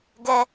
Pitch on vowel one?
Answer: high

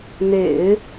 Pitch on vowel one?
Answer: low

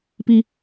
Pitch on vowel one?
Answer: low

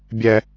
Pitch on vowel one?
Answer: high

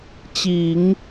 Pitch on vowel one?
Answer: low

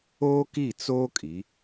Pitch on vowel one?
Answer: high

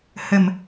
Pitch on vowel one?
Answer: low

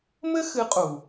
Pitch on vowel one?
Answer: high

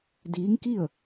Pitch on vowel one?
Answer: rising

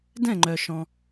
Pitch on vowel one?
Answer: falling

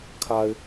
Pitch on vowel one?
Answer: high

